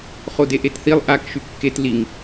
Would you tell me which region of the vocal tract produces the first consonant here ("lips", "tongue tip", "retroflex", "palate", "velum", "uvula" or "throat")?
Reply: uvula